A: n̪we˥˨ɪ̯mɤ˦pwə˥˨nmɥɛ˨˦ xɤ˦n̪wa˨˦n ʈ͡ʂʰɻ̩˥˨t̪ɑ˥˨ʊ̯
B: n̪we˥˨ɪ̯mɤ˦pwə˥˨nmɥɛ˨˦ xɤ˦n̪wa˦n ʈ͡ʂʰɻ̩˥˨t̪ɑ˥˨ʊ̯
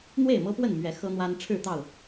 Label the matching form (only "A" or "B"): B